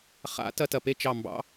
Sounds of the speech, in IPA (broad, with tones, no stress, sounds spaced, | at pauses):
χ a̰˧˥ t ɐ˥ t ɐ˦˨ p e˥ t͡ʃ ɑ˦˨ m b ɑ̰˧˥